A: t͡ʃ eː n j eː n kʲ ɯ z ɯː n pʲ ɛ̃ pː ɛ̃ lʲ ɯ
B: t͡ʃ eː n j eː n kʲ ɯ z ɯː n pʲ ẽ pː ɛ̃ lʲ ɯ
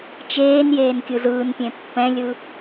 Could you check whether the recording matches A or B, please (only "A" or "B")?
B